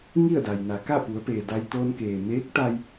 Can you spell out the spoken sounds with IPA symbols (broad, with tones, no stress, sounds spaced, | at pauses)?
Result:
ŋ i˥˨ ə̯ d a˩ j n a˩˧ k a˥˨ p u˩˧ ə̯ p eː˩ d a˧ j t̪ oː˧ n k eː˩ m eː˧˥ k̚ t̪ a˧ j